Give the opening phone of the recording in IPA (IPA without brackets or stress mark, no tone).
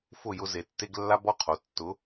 f